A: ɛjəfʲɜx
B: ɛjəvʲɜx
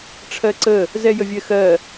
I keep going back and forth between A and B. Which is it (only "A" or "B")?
B